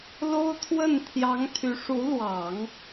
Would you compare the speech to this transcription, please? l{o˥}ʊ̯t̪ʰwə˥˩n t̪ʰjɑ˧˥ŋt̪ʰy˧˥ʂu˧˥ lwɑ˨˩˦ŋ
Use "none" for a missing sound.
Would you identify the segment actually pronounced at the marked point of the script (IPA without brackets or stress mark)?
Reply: o˥